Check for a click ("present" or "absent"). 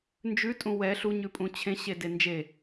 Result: absent